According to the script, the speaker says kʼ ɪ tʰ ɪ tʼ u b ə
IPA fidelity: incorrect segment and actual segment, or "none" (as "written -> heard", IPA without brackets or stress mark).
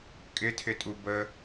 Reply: none